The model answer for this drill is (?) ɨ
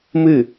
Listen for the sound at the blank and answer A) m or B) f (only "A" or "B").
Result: A